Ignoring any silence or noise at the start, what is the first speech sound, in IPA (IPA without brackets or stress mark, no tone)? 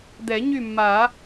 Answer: d̪